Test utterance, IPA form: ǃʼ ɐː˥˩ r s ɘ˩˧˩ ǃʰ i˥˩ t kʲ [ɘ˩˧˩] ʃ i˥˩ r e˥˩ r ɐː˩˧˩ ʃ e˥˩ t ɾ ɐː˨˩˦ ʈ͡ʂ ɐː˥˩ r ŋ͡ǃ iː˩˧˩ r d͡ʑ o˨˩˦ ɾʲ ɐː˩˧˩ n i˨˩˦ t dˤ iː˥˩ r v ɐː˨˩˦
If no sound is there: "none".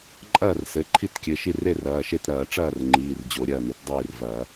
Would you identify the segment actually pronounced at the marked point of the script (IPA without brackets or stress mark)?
ɘ˩˧˩